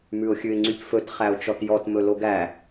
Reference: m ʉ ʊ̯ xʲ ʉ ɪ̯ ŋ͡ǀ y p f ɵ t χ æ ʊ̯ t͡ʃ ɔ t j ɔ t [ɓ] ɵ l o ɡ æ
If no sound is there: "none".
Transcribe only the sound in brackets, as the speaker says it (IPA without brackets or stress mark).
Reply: m